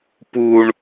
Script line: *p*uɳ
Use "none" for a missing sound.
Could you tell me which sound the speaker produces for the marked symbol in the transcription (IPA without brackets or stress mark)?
p